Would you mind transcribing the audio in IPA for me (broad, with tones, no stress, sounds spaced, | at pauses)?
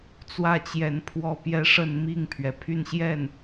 t͡s w ä˥˩ t͡ɕ j ɛ˧˥ n pʰ w ɔ˥˧ p j ɛ˥˧ ʂ ə˥˧ n m i˥˩ ŋ pʰ ɥ ɛ˩ pʰ y˥˧ n ɕ j ɛ˥˩ n